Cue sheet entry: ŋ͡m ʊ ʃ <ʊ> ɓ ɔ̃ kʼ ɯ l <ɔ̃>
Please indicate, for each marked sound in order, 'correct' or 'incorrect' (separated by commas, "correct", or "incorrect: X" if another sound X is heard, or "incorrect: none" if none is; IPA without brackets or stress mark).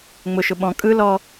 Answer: correct, incorrect: ɔ